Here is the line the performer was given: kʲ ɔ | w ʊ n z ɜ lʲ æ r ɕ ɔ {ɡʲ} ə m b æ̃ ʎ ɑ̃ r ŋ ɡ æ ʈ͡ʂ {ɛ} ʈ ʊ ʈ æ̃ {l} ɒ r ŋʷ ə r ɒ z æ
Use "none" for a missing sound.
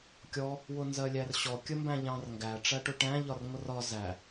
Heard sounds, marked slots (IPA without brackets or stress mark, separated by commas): kʲ, æ, ʎ